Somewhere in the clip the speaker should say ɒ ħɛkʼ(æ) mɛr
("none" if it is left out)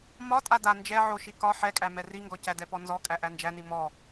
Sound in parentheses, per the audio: æ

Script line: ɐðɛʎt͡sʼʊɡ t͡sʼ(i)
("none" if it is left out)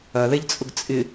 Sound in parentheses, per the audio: ɪ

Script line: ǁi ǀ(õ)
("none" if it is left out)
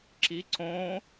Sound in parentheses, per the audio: õ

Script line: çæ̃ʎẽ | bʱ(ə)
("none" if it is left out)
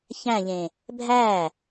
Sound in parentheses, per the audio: æ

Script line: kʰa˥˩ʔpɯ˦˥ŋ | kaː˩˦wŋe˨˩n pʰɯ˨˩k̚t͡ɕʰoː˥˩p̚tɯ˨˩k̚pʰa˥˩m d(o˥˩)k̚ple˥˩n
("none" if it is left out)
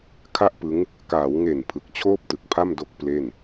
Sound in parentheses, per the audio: o˥˩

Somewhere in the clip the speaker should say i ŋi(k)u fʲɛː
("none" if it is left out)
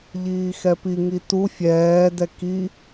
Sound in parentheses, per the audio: t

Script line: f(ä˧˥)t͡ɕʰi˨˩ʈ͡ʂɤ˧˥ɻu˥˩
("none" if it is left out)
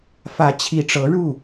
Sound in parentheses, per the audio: ä˧˥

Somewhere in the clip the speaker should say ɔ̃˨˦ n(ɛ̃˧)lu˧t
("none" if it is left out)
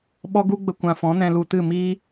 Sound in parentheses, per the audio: ɛ̃˧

